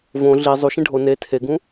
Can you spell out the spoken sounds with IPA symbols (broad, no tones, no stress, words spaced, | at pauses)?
võ ɮi zˤuʃĩ ɖʱo ne tʰeɡũ